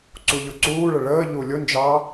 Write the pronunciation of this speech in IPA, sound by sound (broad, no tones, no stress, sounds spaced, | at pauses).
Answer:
ǀ u ʎ ʊ ǀ uː ɭ ə ɭ əː ʎ u lʲ ʊ n d͡ʒ ɑ